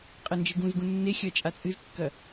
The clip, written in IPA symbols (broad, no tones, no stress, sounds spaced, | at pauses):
qʼ ɐ n d͡ʒ ɨ ɡ ũ z ɡ ũ nː e xʲ ɐ t͡ʃʼ a t͡sʼ ɨ z kː ɐ